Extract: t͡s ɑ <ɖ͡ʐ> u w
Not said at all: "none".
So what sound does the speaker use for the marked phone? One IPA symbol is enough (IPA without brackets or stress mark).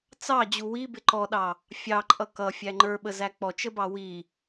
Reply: d͡ʑ